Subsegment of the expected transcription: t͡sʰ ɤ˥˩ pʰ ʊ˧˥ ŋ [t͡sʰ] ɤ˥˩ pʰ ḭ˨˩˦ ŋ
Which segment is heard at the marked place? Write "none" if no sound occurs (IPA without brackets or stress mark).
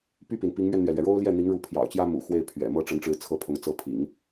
t͡s